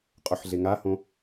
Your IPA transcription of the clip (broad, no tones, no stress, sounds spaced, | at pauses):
qʼ o ħ ɮ e ŋ a h õ